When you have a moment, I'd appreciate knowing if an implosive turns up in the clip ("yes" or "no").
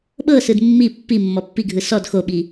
yes